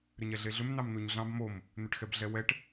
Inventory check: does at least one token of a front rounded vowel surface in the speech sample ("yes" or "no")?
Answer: yes